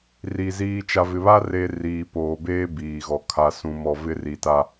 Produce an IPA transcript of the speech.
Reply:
r i˨ z iː˨ t͡ʃ a˨ v ɪ˨ β a˦ r e˦ r iː˨ p oː˨ b eː˦ b iː˨ ɣ ɔ˨ kʰ a˨ s ũ˨ m ɔ˨ v ɪ˦ r i˨ t a˦

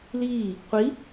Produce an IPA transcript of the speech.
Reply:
l iː | qʷ i

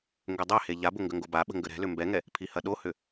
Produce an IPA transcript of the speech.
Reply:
ŋ ɡ ʏ dˤ ɛ h e ʎ a b ʊ ŋ ɡ ə ŋ ɡ o b a ɓ ə̤ ŋ ɡ ə ɾ ɛ̤ l ʏ m b ɛ ŋ ɛ | pʰ i h ɐ ɗ o h ʏ

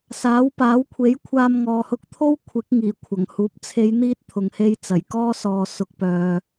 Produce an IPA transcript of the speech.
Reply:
s aː˨˥ w p aː˨˥ w kʷʰ e˨˥ j kʷʰ aː˧ m ŋ ɔː˨ h ʊ˧ k̚ t̪ʰ o˥ w kʷʰ ɪ˨˥ k̚ ŋ iː˨˩ kʷʰ ɐ˨˩ ŋ h uː˨˥ p̚ t͡sʰ e˨˧ j n̪ iː˧ t̚ t̪ʰ ʊ˨ ŋ h e˧ j t͡s ɐ˨˩ j k ɔː˥ s ɔː˨ s ʊ˨ k̚ p œː˨

